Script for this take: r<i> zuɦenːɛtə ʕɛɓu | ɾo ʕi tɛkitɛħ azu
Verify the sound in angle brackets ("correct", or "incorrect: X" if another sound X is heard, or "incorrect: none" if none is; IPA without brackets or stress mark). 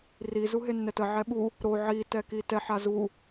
correct